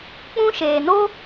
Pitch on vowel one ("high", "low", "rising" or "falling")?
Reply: high